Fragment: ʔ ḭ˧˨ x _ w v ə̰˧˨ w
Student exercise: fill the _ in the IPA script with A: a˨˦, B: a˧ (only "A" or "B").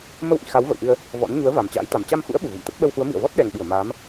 A